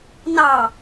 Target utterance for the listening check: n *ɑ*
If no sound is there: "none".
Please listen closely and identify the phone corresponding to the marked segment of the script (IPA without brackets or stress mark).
ɑ